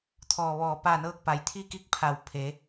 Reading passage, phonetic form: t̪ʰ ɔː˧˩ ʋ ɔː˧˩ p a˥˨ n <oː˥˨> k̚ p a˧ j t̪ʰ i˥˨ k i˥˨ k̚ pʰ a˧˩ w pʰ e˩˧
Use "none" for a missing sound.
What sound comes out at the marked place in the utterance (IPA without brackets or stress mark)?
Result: ɤː˥˨